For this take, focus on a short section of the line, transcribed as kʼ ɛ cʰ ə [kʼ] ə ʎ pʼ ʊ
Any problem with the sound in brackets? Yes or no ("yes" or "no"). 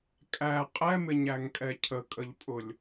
no